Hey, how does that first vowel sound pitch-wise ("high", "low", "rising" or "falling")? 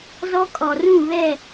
high